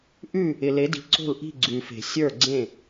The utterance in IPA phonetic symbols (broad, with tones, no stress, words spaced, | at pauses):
ʔʉ˥˨ | ɪ˨le˨˦di̤˨˦ ǀo̤˥˨lʔi̤˥˨ ɡ͡ǀʉ˨fe̤˨ sʲə˞˥˨ɡ͡ǀẽ˥˨